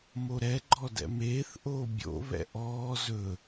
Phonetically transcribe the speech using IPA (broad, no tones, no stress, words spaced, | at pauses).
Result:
moɾɛ ɡ͡ǃɔdɛ̰meːθ ʔoːbʲo̰ βɛ̰ʔɔː zɵ